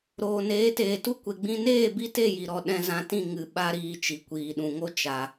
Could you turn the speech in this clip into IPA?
ɾoː˨neː˨˦teː˨tu˦ kʷe˨ɡ͡bĩ˧neː˦˨ bi˦te˦˨ji˨ ɾɔ˨ ɗɛ̃˧ zã˧tĩ˦˨ ŋɨ˧ ɓa˦ɾiː˧ t͡ʃi˨kʷiː˨ɗũ˨ŋo˦ t͡ʃa˧

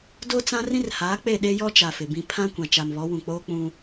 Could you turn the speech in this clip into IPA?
do˦t͡sã˦ rĩ˦rhaː˨˦k͡pe˦˨ ɗe˦jɔ˦t͡ʃa˨ fɪ˨bĩ˦ pʰã˦kʷã˨ t͡ʃa˨mβɔ˨˦wũ˨k͡poː˦ k͡pũ˦

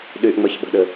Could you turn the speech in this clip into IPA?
ɗyʔŋ͡mɘçɓə̤ɗɘ

